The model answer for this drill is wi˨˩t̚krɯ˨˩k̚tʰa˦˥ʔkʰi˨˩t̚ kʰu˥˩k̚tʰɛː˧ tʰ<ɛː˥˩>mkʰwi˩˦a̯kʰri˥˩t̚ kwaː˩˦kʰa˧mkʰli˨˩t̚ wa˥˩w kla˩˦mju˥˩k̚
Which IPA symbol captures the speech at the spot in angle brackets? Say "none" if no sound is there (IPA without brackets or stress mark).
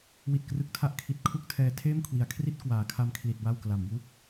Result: eː˥˩